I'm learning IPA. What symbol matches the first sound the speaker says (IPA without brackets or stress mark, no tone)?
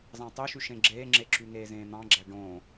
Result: z